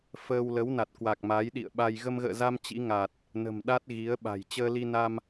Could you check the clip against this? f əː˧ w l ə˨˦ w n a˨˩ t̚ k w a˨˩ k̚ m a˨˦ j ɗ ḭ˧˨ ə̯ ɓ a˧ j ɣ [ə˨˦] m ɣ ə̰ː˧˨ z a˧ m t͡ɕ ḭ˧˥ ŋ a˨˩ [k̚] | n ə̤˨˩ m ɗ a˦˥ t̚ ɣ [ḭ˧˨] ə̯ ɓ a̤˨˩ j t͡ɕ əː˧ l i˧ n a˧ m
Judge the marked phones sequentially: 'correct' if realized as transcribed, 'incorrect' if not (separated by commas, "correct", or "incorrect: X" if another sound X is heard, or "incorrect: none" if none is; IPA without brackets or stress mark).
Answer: incorrect: ə˧, incorrect: t̚, incorrect: i˨˦